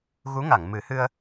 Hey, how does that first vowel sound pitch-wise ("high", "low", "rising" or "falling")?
rising